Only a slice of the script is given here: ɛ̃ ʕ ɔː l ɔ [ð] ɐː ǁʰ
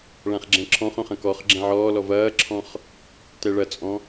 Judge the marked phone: incorrect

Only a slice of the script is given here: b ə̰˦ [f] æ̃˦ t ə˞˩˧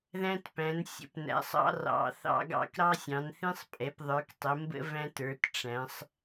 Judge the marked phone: incorrect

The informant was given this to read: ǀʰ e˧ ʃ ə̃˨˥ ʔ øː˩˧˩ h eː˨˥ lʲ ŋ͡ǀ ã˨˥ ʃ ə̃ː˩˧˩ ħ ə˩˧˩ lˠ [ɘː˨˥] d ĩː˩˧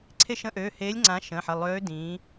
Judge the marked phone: incorrect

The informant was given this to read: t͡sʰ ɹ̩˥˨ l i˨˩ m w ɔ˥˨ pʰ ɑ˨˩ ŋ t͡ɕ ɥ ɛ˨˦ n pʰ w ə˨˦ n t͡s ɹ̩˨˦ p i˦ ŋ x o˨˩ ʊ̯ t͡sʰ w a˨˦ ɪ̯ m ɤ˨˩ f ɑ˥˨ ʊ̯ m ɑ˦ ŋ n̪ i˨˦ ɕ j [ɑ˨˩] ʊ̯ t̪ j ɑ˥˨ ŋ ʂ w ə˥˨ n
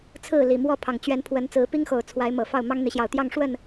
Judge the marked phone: correct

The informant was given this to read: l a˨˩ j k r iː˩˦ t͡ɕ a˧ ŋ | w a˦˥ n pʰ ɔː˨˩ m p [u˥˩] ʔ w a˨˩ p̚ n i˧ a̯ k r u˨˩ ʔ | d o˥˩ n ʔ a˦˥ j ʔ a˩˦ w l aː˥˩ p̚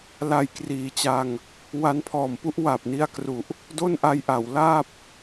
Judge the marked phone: incorrect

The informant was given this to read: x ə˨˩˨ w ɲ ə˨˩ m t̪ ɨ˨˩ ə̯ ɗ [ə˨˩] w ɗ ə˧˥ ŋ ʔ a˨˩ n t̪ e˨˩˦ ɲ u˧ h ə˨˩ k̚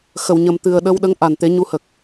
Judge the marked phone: incorrect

